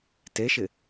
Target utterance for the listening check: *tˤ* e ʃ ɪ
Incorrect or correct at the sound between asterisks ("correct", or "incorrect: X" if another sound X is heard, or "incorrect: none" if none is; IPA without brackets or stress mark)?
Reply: incorrect: t